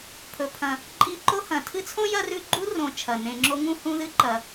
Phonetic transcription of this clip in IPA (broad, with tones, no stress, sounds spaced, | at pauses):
pʰ ɵ˩ pʰ ɐ̃˩ | ǃʼ i˦ ǃ o˥ h ɐ̃˨ tʰ ɨ˦ t͡sʰ õ˥ j ɐ˦ r ʉ˦ ɡ͡ǃ u˥ r õ˨ t͡ʃʰ ɐ˩ n ẽ˨ ŋ͡ǁ o˦ ŋ ũ˥ h ũ˦ ð ɨ˥ ǃ ɐ˩